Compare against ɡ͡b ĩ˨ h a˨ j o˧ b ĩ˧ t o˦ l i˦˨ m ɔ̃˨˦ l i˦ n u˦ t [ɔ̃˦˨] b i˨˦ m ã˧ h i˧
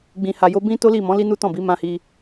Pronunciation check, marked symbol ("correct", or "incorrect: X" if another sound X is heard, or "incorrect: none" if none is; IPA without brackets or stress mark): correct